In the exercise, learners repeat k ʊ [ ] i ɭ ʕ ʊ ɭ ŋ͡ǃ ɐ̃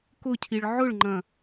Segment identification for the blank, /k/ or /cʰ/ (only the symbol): cʰ